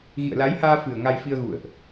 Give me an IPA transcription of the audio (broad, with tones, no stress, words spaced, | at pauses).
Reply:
ɣḭ˧˨ə̯la˨˦jhaː˧ fɨ˨˩ə̯ ŋa˧jfi˧ə̯ɣṵ˧˨ə̯ʔ